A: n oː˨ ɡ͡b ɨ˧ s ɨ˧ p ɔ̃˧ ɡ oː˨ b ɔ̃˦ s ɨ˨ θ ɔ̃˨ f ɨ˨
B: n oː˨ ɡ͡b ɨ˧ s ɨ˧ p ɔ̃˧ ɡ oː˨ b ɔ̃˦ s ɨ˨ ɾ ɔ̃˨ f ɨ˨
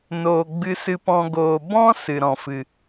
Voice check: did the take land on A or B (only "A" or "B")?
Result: B